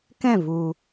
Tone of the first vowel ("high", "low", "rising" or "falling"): falling